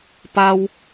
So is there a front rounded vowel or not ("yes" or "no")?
no